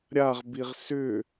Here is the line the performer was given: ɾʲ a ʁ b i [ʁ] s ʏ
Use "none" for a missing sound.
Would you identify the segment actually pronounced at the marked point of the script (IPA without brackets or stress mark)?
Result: ʁ